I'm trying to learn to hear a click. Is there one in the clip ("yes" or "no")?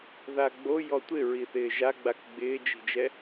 no